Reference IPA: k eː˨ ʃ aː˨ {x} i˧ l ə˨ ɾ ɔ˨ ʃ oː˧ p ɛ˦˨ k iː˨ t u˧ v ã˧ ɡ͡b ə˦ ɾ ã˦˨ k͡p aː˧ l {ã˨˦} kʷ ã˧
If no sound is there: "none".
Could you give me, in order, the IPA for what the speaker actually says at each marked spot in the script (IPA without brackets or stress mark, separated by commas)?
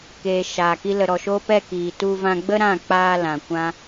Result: k, ã˨